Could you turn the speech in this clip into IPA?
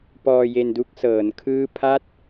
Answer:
p ɔː˧ j e˧ n d u˦˥ k̚ s ɤː˩˦ n kʰ ɯː˥˩ pʰ a˥˩ t̚

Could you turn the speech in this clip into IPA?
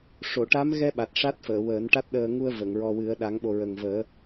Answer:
ʂ o˨˩˨ ʈ a˧˥ m ɣ ɛ˧ ɓ a˨˩ t̚ ʂ a˦˥ t̚ f əː˨˩˨ w əː˨˩˦ n ʈ a˦˥ t̚ ɗ əː˧ ŋ u˧ ə̯ v ə˨˩˨ ŋ ɹ ɔ˧ w ɨ˨˩˦ ə̯ ɗ a˨˩˦ ŋ ɓ o˨˩ ɹ ə˨˩ ŋ v əː˨˩˦

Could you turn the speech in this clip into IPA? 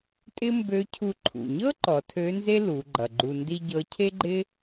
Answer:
tʼ ɪ˥ m b ø˧˥ cʰ u˧ ǃʰ ṵ˩ ɲ ɤ˥ ǃ ɔ˩˧ tʰ ø˧˥ n z e˥ l u˩˧ ɡ͡ǃ ʌ˩ ɡ͡ǃ u˧ n d i˥ ɟ ɤ˧˥ cʰ e˥ ɡ͡ǃ ɪ˥

